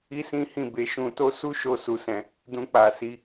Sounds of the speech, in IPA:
i˦ s ĩ˦ h ĩ˦˨ b e˨˦ ʃ ũ˧ t o˦ s u˦ ʃ o˧ s u˨ s ɛ̃˨ | d ũ˧ k͡p a˨ s i˧

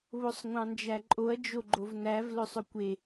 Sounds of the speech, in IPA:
β o sˤ ŋʷ ɑ̃ n d͡ʒ æ ǃʼ o ɐ̯ d͡ʒ o ɡ͡ǃ o v n æ v l ɵ sˤ ɵ kʷ e

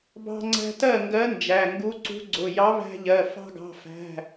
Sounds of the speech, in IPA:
b ɑ̤˧ ŋ͡ǀ æ̤˧ t ɜ˥˩ ŋ ɡ ɜ˧˥ n d͡ʒ æ˩˧˩ ŋ ɡ u˧˥ ǀ ṳ˧˥ ɡ͡ǀ ʊ˩˧˩ j ɑ˧˥ β æ̤˧ ʎ ɜ˩˧˩ f ɑ̤˧ ɡ ɑ̤˩˧˩ f æ̤˩˧˩

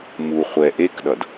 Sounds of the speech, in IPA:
m u χʷ ɛ ʔ e k ɗ ʌ d

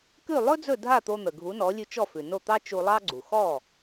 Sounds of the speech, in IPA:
k ʉ˥˩ lˠ ɵ˥ d͡z ɵ˥˩ dʱ a˥˩ t̪ o˧ n̪ ə˩ ɡʱ u˩˥ n ɔ˩˥ lʲ ʉ˧ t͡ʃ ɔ˥˩ f ʉ˩ n o˥˩ t̪ ɑ˥ t͡ʃ u˧ lˠ ɑ˥ ɡ͡ǀ u˩ x ɔ˥˩

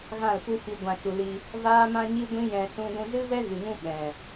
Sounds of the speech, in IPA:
ɣ ã˦˨ l p u˦ f i˧ ɡʷ ã˨ ʃ u˨ l i˧ | v aː˦ m ã˦ ɲ i˦ ɡʷ ĩ˦ j ɛ̃˧ s ũ˧ ɡʷ ũ˧ z ɨ˦ v ɛ˦ ɣ ɨ˨ ŋ ũ˦ ɓ ɛ̃˨

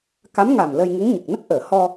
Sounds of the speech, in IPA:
k a˧˥ m ŋ a˨˩ m l ə˧ j ŋ u˧˥ ŋ ɲ ə˨˩ k̚ n ə˦˥ k̚ ʔ əː˨˩˨ h ɔ˧

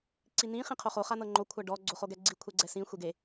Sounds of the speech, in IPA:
ǀ i n ĩ χ ĩ qʰ o χ o χ a n ɤ ŋ͡ǃ o kʷʰ a ɖ ɔ ɡ͡ǀ o χ o ɡ ɛ ɡ͡ǀ i kʷʰ ɛ ɡ͡ǀ ɛ s ĩ xʷ e ɡ e

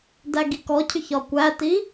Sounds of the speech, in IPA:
d æ ɡ i k ɔ cʰ ʏ ç ɒ kʷ æ t i

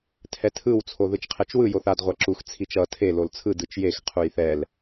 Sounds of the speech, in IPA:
tʰ ɛ tʰ ɯ w t͡sʰ o ð ɯ t͡ʃ qʰ ɛ t͡ʃ w ɯ j o θ a d ʁʷ a ǁ u x t͡sʰ i t͡ʃ ʌ tʰ e l o l t͡sʰ ɯ d ɯ t͡ʃ j e x qʰ u j θ ɛ l

